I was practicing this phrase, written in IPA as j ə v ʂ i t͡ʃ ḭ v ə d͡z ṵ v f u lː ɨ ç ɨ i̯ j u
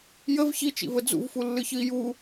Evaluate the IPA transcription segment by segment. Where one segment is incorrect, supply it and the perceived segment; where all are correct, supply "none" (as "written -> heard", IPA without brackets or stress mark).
ʂ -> ç